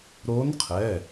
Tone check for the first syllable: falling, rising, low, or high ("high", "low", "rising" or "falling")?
rising